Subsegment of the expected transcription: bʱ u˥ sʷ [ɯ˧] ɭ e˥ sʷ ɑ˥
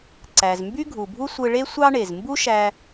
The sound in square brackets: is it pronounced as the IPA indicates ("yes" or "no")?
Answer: yes